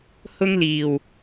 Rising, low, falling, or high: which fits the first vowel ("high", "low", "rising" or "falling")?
high